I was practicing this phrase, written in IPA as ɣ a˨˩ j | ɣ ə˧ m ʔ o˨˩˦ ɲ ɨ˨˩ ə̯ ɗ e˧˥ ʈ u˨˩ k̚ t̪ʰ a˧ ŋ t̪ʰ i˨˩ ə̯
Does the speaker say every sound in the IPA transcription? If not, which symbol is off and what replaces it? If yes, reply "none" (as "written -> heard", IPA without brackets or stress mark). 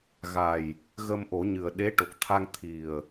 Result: u˨˩ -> o˨˩